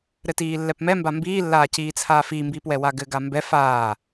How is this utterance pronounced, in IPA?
ɾ ɘ t iː lː ɛ p m ɛ m b a m b iː lː aː c iː t͡sʰ aː f i m b iː p w ɛ w a ɡ ɘ ɡ a m b ɛ f aː

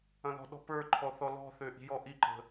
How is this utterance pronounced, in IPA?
ɐ̃ ð ɔ̤ ɗ ɔ̤ p ə˞ ǃʰ ɔ θ ɔ l ɔ̤ θ ø ʔ i̤ j ɔ ʔ i ǃ ə̤

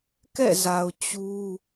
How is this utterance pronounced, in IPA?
k ɛ̰˦˨ z a˨ ʊ̯ t͡ɕ u˦

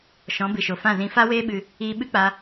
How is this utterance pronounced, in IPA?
ʃ ɔ̃˨˦ b ɨ˨ ʃ o˨ f ã˦˨ z ĩ˧ f a˦ w eː˦ ɓ ɨ˧ | iː˧ ɓ ɨ˦ k͡p a˧

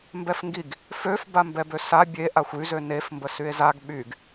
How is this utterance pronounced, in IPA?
m b ɛ f ŋ ɡ i ɡ | f ø f b a m b ɛ b ø s a bʲ e ʔ a xʷ y z ø n e f m b ə s y e̯ z a ɡ ɓ y ɡ

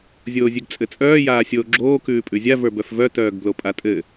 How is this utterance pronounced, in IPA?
zʲ oː zʲ ʉ ɡ t͡sʼ ɘ t͡sʼ œː j aː sʲ oː ɡ͡ǁ oː k ʉː pʼ ʉ zʲ a v ə˞ b œ f v œ t œː ɡ b l o pʼ a tʼ ɘ

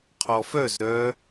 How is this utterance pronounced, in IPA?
qʰ ɔ f œ z ɾ œ

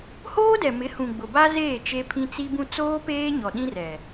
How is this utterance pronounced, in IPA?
h oː˦ d ɛ˨ m ɪ˨˦ h ũ˨ ɡ͡b ʊ˨ b a˦ z eː˦˨ t͡ʃ e˦ pʰ ĩ˦ t͡s i˦ b ũ˦ t͡s oː˦ p eː˦ ɲ ɔ˨ ɗ ĩ˦ r ɛ˨

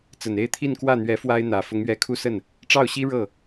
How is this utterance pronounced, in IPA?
t͡s ə˨˩ n e˥˧ ɪ̯ t̪ʰ i˥˧ n k w ä˥˩ n̪ ɥ ɛ˧˥ f w a˥ ɪ̯ n̪ ä˨˩ f ʊ˧˥ ŋ ɥ ɛ˧˥ kʰ u˥˧ s ə˥˩ n | ʈ͡ʂ ɑ˥˩ ʊ̯ ɕ i˥ ɻ ɤ˥˩

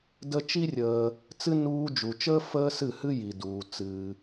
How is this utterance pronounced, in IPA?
d ə˦ t͡ʃ i˦ rʲ əː˧ | t͡s ɨ˦ n uː˧ d͡ʒ u˨ t͡ʃ əː˦ f əː˦ s ɨ˦˨ h ɨ˦ j i˨ d uː˧ t͡s ɨː˧

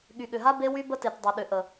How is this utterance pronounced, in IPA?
ɠ y˨ ɠ ʏ˨ ɦ a˦ b e˦ w y˦ b ə˦ t e˨ t dˤ ɯ˨ ɗ ʏ˨ ʔ ə˨

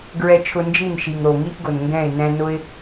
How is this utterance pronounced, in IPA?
ɡ ɹ ɛ˧ t͡ʃʰ ʊ˧ n d͡ʒ i˦˨ n ʃ i˨ ŋ ɾ o˨ ŋ i˦ ʔ ɡ ʊ˨ n ŋ ɡ ɛ̃˦˨ ɪ̯ n ɛ̃˧ n ʊ˦ ɪ̯

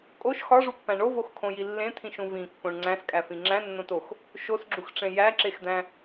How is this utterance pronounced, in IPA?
kʼ o ʃ x ɒ ʐ u pː æ̃ ɳ o v o x kʰ õ j i lː ẽ t̪ʰ ĩ ʃ ũ v ĩ kː õ ɳ ŋ͡ǀ æ̃ s kʼ æ f ĩ ŋ͡ǁ æ̃ nː õ t o x | ʃ o s ɡ͡ǁ u x ʈ͡ʂ ẽ j æ ǁ e x d̪ æ̃

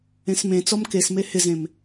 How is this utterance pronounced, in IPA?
ẽ s m ẽ t͡s ɔ m k e s m e h ɪ z ẽ m

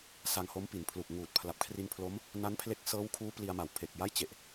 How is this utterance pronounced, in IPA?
s a˧ ŋ h o˦˥ m p i˩˦ n pʰ l u˨˩ k̚ ŋ uː˨˩ t̚ pʰ l a˨˩ p̚ kʰ r i˧ n pʰ l o˦˥ m | n a˦˥ n pʰ l e˦˥ k̚ s ɤː˦˥ w kʰ uː˦˥ p l i˧ a̯ m a˨˩ w pʰ e˨˩ k̚ j a˥˩ j t͡ɕ e˨˩ ʔ

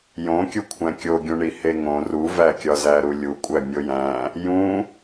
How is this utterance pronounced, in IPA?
j õ kʲ u kʷʰ æ̃ kʲ o ɡʲ ũ ɳ i h e ŋ õ r u v æ kʲ ɒ z æ ɾ u lʲ u kʷʼ æ mʲ o j æ̃ | j ũ

